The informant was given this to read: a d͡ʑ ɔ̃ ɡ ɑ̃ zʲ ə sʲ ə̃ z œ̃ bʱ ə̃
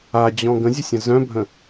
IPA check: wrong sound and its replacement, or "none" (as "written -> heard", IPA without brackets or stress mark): ɑ̃ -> ə̃